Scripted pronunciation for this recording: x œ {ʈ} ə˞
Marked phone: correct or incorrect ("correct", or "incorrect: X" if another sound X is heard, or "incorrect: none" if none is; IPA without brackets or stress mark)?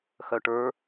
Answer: correct